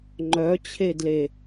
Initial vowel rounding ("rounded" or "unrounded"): rounded